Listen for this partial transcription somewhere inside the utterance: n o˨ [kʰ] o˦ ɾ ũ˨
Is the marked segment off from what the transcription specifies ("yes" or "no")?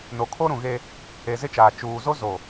no